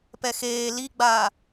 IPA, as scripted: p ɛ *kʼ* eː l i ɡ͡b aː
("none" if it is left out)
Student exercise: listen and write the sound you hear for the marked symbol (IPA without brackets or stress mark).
x